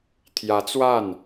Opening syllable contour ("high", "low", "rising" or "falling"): rising